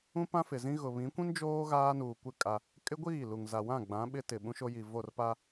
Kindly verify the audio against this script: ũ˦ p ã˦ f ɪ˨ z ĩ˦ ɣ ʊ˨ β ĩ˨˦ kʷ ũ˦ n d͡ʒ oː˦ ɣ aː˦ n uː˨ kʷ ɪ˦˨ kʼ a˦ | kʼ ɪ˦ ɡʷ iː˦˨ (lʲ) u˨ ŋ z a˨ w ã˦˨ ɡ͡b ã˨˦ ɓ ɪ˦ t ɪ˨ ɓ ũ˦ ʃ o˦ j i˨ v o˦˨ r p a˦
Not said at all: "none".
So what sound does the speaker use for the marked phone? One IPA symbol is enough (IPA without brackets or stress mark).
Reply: l